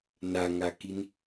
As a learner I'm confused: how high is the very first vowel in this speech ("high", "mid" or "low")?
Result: low